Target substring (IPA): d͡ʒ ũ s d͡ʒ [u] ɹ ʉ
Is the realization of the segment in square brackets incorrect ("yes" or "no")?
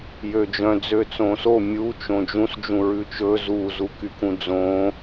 yes